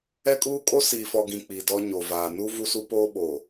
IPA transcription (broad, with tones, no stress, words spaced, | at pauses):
ɛ˦kʼuː˦ kʼo˦siː˨fɔ˨ɡĩ˨ k͡pi˨dɔ˦ ɲo˨vaː˨ nu˦ vu˦su˦ poː˦ɓoː˨